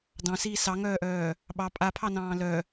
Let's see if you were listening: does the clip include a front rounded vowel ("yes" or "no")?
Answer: yes